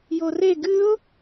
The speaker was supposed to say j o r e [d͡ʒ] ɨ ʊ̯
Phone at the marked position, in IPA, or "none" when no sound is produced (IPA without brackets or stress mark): ɡ